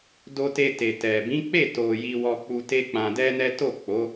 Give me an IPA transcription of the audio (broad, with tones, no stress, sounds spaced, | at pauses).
d o˧ t e˧ t e˨ t ɛ˨ b ĩ˨˦ k͡p e˦˨ t o˨ j i˧ w ɔ˧ k͡p u˧ t e˦ k͡p ã˧ d ɛ˦ n ɛ˦ t o˦˨ k͡p o˨˦